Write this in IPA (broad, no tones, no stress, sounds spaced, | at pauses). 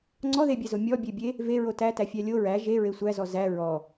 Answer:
ŋ͡ǀ ɔ ð e bʲ æ z o mʲ ɔ bʲ e bʲ e | v e ɹ o t æ t æ fʲ æ lʲ o ɹ æ ʒ e ɹ e sʷ æ z ɔ z æ ɹ ɔ